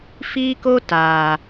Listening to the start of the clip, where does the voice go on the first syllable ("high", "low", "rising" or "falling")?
high